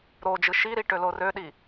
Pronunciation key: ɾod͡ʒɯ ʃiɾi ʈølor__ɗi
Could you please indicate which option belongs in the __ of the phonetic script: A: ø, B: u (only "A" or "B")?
A